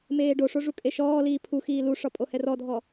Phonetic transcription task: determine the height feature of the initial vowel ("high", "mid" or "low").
mid